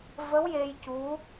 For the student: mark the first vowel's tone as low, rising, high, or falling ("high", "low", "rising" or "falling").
rising